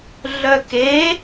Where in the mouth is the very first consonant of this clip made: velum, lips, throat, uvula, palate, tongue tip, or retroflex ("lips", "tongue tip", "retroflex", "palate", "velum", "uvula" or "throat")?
tongue tip